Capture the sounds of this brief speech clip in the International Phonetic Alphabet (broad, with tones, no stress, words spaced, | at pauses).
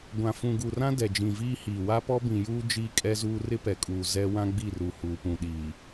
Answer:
ɡʷã˨ fũ˨ɡu˨rã˦ dɛ˨d͡ʒĩ˨viː˦hiː˨ wa˦pɔ˦bĩ˨juː˦ d͡ʒiː˦kʼɛ˦zuː˦ rɪ˦pɛ˨kʼuː˨ zɛ˦ wã˦ɡ͡bi˦˨ru˨ huː˨pũ˨ɗiː˨